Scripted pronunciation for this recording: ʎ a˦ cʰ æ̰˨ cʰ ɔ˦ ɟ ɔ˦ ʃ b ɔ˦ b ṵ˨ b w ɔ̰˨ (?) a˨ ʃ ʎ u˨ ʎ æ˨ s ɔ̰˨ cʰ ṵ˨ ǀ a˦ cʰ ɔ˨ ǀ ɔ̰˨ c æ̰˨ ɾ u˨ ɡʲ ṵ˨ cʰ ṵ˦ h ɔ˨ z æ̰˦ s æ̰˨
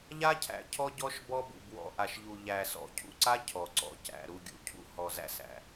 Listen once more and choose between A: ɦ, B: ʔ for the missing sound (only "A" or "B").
B